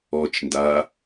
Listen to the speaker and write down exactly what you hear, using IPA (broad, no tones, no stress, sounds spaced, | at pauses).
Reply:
ɔ t͡ʃ n d a